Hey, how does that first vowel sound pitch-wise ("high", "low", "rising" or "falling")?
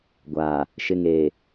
low